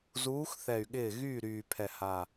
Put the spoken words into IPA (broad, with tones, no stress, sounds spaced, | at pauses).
z uː˨˦ x θ ɛ˨˩ y̯ ɠ ɪː˥˩ ɣ yː˥˩ ɾ yː˨˩ pʰ ɛ˨˩ h a˨˩